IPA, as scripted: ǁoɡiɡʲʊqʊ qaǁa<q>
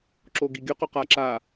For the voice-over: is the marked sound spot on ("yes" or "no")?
no